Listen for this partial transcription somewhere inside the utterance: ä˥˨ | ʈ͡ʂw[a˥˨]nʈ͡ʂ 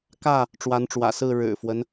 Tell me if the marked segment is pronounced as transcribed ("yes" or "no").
no